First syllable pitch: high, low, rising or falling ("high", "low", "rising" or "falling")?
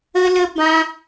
high